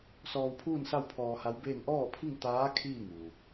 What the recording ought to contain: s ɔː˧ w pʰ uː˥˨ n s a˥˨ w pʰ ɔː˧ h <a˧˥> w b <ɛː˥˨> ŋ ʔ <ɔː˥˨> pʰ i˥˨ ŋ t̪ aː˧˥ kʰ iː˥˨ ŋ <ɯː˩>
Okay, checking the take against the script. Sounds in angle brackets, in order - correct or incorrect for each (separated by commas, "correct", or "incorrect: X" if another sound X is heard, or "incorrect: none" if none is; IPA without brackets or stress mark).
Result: correct, incorrect: eː˥˨, correct, incorrect: uː˩